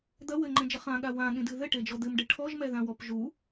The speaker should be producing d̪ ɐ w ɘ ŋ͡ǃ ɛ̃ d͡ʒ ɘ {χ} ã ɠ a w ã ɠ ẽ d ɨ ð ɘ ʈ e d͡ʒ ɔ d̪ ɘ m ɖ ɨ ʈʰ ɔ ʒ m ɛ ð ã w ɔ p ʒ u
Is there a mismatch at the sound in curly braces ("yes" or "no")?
no